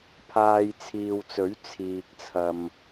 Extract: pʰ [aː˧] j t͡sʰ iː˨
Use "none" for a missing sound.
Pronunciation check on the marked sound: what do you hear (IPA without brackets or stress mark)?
aː˧